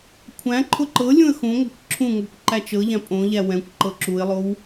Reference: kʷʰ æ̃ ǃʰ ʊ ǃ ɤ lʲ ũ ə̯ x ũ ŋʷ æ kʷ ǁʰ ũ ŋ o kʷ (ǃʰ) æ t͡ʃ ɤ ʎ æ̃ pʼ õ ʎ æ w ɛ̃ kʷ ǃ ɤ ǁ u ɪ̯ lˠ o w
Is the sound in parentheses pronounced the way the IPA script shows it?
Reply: no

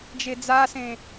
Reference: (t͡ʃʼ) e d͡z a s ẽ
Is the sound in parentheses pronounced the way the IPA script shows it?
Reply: no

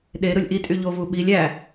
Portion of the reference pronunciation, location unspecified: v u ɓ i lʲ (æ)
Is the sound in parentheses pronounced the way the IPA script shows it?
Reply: yes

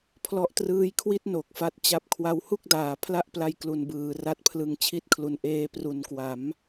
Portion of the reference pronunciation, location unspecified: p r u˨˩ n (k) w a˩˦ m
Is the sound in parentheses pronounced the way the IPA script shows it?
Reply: yes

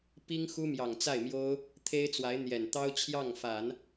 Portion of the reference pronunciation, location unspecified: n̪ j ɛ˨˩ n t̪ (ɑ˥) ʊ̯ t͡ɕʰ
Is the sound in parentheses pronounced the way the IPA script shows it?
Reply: yes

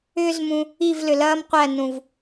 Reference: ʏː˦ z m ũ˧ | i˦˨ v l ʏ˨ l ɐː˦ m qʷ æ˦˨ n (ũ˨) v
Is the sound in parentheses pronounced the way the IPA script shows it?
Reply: yes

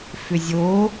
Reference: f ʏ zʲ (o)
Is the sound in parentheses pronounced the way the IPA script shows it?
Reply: yes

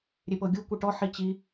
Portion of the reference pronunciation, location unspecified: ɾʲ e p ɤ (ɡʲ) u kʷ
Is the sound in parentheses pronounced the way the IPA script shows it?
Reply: yes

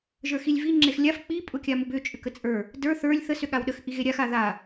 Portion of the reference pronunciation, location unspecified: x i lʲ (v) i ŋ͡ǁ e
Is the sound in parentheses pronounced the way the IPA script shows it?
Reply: yes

